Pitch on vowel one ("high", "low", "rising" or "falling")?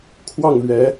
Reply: falling